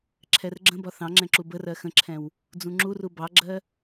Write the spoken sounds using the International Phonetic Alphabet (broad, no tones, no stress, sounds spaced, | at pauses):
ǁʰ ɛ r ɡ͡ǁ ə̃ b ɒ θ ɑ̃ ŋ͡ǁ ɛ̃ ǁ u b ə r ɜ x ə̃ ǁʰ ɛ̃ w | d͡z ũ ŋ͡ǁ u r u b ɑ ɡ͡ǁ ɜ